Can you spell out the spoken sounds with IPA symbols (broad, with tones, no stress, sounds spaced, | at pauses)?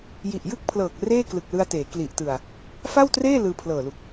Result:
j i˨˩ ʔ j ɯ˥˩ k̚ pʰ l ɤː˨˩ k̚ r eː˥˩ k l ɯ˨˩ k̚ l ɯ˧ a̯ t eː˩˦ k l i˨˩ ʔ t ɯ˨˩ a̯ | f a˥˩ w t r eː˥˩ l ɯː˧ pʰ l ɤː˨˩ l u˨˩ k̚